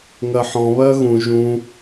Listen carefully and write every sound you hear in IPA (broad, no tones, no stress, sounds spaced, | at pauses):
ŋ ɜ ħ ɔ̃ β ɜ ɣ ũ ʒ ũ